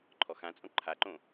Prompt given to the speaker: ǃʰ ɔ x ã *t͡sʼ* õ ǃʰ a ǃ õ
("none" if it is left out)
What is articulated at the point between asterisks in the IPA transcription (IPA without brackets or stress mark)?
t͡sʼ